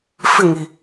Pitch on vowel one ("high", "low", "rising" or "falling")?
falling